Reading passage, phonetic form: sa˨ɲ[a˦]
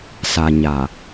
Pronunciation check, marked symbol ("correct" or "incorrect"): incorrect